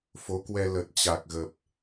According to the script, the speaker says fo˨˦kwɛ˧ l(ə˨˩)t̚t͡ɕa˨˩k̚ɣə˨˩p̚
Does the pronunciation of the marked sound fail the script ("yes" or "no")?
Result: no